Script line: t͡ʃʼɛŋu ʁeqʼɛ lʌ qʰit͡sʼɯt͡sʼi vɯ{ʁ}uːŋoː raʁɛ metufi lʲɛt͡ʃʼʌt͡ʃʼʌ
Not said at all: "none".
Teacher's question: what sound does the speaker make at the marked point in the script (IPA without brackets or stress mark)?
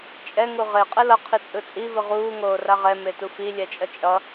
ʁ